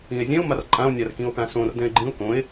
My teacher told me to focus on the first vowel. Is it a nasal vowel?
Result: yes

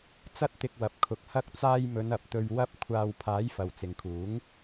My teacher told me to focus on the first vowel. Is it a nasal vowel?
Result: no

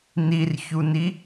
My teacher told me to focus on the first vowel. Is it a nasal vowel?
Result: no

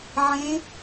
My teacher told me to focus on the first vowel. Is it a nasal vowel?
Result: yes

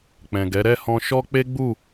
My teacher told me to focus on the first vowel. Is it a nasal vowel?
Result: yes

